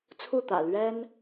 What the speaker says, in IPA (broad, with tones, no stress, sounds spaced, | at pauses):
t͡sʰ u˥˩ t̪ ä̰˨˩ l ɥ ɛ˥ n